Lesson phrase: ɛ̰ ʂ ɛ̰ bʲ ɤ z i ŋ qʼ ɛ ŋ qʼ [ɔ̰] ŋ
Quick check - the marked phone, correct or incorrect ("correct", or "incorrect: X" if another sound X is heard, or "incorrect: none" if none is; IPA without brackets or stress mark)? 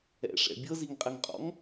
correct